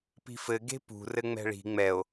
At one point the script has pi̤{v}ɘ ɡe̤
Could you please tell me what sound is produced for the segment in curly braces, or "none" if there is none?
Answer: f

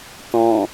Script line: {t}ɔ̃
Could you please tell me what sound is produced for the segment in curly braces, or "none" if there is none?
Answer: t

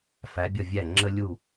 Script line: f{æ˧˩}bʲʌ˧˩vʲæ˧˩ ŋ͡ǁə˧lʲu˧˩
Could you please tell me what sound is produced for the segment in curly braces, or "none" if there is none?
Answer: æ˩˧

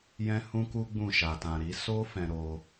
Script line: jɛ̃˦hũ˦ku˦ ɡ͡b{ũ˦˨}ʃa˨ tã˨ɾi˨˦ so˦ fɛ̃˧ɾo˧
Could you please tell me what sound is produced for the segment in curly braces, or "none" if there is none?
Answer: ũ˦˨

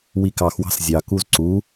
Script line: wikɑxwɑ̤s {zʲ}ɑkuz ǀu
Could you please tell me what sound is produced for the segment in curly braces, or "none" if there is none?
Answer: zʲ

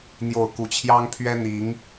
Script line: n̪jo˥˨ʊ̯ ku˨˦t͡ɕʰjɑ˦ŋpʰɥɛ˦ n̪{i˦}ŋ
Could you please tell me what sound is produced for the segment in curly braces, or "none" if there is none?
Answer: i˨˦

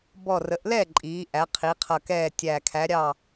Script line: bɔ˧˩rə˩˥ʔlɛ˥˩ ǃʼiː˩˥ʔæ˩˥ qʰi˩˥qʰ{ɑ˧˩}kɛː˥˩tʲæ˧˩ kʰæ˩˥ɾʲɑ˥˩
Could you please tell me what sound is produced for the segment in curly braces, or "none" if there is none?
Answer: ʌ˧˩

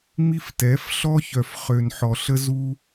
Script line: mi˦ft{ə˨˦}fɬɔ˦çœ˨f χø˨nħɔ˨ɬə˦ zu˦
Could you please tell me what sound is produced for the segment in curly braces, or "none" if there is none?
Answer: ɛ˨˦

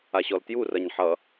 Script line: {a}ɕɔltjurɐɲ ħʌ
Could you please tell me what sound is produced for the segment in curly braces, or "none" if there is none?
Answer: a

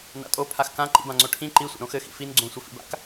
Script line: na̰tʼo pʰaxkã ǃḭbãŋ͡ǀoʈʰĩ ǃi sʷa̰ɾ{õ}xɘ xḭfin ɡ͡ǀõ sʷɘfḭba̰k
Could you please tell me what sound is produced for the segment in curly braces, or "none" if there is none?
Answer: õ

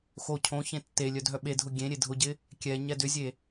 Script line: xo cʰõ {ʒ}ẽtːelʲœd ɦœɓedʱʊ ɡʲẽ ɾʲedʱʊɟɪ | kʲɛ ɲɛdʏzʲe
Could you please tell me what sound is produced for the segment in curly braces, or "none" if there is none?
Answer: ç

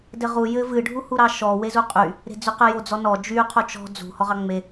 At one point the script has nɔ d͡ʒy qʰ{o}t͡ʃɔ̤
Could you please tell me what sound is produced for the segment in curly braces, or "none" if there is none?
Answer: o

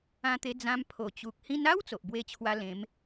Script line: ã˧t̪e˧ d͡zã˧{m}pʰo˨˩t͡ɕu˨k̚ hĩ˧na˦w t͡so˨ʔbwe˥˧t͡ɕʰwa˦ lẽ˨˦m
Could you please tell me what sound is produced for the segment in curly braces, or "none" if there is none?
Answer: m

